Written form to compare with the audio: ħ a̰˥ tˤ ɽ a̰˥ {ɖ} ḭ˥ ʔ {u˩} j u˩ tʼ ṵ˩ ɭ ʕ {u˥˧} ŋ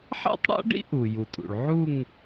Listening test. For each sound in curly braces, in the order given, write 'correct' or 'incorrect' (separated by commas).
correct, correct, correct